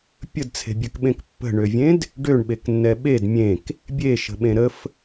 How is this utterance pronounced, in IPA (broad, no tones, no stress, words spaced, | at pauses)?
pʲədt͡sʰe̤bʲøkɓẽk pːə̤ɳøvʲẽd | ɖøɳɓeknːɛ ɓed mʲẽk | bʲeʃə̤ɓẽ ɾəf